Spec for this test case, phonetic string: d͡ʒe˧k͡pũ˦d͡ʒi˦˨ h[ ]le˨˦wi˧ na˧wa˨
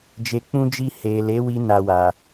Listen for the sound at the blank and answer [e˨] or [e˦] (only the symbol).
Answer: e˨